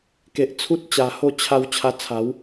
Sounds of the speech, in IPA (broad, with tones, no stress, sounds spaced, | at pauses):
k e˨ ʔ t͡sʰ u˦ t̚ t͡ɕ a˨˩ h o˥˧ t͡ɕʰ a˧ w t͡ɕʰ a˧ t͡sʰ a˨˦ w